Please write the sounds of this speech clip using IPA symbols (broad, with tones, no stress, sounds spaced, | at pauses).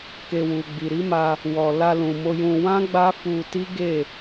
k e˨ w u˨ ɡ͡b i˨ ɾ i˨˦ m a˧ | w ɔ˨ l a˧ l ũ˨ m o˧ j ũ˧ w ã˦ ɡ͡b a˦ f u˧ t i˦ ɡ e˦˨